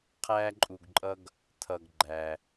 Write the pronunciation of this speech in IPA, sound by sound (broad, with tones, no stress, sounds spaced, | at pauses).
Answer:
qʰ æː˥ ǃʼ u˧ ɡ ǃʼ ʌ˥ ɡ | tʰ ʌ˧ ɡ ɡ͡ǃ æ˧